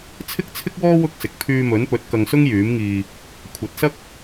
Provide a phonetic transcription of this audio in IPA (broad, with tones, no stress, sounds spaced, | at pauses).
t͡sʰ ɪ˥ k̚ t͡sʰ ɪ˥ k̚ w ɔː˥ w ʊ˥ k̚ s ɪ˨ k̚ pʰ yː˧ m ɵ˨˥ n p ɵ˨˥ t̚ k ɐ˧ ŋ s ʊ˥ ŋ j yː˨˥ m ŋ iː˧ | kʷʰ ɐ˨˥ t̚ s ɐ˥ k̚